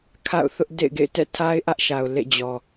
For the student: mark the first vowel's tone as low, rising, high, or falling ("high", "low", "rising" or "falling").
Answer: falling